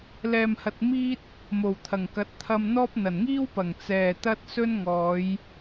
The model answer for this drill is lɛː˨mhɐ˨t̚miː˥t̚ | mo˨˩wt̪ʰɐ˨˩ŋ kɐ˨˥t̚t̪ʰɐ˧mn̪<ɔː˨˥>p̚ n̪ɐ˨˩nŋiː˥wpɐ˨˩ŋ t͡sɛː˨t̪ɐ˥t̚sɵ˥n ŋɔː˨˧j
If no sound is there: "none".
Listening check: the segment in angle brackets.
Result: ɔː˥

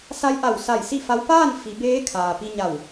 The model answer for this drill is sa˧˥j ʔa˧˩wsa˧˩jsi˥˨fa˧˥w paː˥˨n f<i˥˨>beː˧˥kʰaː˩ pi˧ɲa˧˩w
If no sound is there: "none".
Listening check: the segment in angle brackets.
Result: i˩˧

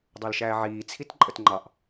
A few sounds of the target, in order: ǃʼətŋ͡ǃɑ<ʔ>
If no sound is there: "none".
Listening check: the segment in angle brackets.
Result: ʔ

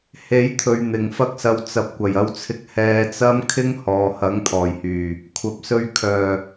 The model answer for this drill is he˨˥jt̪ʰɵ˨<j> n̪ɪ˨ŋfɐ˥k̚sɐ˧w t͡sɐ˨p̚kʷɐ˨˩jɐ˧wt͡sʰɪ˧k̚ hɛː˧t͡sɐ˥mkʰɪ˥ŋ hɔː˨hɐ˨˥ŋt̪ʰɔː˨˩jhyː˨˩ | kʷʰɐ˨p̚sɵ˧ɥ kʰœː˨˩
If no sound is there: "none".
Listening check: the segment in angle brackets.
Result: ɥ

